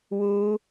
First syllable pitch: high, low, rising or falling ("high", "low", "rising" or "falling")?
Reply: high